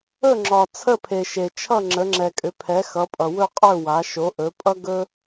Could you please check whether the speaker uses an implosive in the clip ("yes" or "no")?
no